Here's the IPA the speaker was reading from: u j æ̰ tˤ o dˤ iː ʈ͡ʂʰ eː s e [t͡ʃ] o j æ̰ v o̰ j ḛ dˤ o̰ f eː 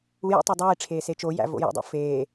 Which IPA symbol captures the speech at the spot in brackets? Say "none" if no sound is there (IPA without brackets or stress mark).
t͡ʃ